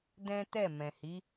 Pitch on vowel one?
high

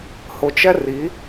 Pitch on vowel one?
low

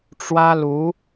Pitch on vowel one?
high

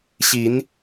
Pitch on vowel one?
rising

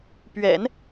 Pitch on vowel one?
low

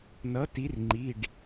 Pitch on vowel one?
rising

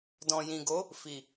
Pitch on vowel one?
low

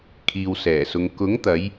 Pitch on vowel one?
low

